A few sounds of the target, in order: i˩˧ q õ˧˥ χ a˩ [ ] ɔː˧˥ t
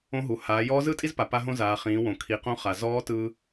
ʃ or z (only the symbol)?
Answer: z